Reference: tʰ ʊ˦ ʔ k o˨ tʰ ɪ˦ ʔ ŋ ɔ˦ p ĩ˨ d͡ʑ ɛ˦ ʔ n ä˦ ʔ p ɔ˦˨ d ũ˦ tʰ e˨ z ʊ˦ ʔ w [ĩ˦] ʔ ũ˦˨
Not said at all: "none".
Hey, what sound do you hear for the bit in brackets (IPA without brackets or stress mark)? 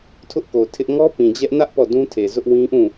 ĩ˦